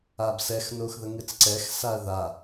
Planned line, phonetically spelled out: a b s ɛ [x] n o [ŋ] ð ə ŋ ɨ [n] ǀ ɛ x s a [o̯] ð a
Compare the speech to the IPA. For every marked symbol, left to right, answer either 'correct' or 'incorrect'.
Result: correct, incorrect: x, incorrect: t͡s, incorrect: ɐ̯

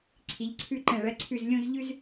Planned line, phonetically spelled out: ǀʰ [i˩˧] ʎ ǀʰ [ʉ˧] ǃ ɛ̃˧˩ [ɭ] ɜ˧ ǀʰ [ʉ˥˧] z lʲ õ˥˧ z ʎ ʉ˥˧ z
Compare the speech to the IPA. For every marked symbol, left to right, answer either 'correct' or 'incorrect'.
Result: correct, correct, correct, incorrect: ʉ˧˩

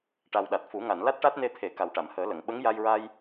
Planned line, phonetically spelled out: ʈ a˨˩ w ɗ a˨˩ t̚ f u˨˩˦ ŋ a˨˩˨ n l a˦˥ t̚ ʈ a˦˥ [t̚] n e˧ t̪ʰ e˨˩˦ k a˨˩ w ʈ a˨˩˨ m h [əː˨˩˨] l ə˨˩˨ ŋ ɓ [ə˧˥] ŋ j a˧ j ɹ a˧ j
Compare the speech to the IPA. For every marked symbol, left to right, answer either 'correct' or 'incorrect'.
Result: correct, incorrect: əː˨˩˦, correct

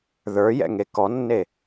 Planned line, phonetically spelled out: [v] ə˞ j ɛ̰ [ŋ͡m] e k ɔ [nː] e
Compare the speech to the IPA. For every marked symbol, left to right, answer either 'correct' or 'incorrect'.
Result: incorrect: ð, incorrect: ŋ, correct

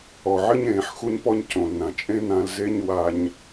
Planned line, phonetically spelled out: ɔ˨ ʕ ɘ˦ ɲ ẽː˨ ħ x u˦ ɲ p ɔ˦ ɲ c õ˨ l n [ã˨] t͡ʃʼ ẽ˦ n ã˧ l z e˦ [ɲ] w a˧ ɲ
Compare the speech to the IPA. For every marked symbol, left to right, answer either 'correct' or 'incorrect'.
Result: correct, correct

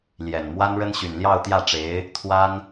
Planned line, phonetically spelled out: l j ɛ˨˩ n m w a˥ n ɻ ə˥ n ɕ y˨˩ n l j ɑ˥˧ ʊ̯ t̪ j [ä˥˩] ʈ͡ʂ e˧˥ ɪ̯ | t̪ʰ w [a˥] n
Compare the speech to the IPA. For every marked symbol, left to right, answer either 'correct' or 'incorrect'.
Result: correct, correct

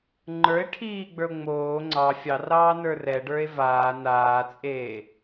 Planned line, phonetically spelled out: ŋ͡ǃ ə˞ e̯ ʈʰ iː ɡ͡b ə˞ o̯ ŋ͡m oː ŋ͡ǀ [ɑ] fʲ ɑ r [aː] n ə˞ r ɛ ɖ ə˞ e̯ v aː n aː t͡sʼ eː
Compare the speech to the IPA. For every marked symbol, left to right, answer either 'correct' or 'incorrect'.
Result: correct, incorrect: ɑː

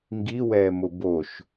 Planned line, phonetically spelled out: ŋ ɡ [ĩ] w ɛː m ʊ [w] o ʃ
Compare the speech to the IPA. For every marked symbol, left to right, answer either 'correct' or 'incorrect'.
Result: incorrect: i, incorrect: b

